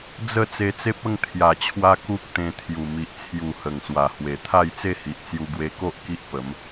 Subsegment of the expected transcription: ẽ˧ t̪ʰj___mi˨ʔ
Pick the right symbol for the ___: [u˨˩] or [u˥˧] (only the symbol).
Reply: u˨˩